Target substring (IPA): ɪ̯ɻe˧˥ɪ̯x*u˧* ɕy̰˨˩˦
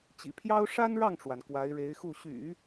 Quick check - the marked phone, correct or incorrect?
incorrect